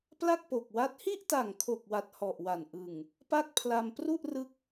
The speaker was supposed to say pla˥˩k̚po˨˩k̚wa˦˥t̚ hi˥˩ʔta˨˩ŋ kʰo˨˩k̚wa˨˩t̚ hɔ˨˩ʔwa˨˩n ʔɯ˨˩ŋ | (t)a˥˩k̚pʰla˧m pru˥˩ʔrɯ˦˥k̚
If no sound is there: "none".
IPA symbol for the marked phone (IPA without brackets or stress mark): p